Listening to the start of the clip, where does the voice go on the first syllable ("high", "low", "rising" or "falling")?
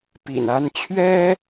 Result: low